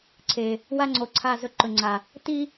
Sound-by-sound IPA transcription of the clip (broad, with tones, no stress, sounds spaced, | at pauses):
ǀʰ e˨ | w a˦ ŋ͡ǀ o˨ ǀʰ a˦˨ z ɵ˦ ǃ ɵ˨ ŋ͡ǀ a˨ | t i˦